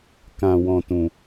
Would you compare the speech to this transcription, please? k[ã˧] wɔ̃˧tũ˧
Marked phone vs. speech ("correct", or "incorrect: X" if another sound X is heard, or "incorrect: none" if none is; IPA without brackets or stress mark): correct